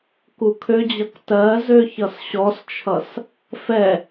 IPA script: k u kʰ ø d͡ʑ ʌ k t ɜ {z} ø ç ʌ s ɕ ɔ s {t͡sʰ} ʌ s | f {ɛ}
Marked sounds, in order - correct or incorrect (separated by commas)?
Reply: correct, incorrect, correct